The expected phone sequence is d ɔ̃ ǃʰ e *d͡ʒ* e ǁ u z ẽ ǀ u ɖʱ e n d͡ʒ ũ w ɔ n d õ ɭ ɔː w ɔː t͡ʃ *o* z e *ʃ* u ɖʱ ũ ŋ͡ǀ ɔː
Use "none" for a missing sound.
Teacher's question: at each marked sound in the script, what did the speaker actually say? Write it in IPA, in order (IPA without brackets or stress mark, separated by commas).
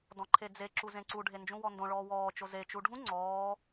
d͡z, o, t͡ʃ